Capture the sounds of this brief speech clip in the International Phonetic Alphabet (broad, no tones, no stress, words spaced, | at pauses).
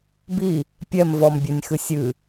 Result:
bi | pʲɛm vɔmbʲɛnʲ xɨsʲɨ